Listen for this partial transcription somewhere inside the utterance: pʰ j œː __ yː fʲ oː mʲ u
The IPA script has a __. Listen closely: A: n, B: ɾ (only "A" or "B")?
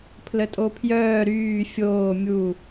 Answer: B